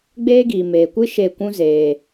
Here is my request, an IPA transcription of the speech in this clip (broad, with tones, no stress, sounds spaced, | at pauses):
ɡ͡b eː˦ ɡ iː˨ m eː˨ kʷ ɨ˦ ʃ e˦˨ kʷ ũ˦ z eː˨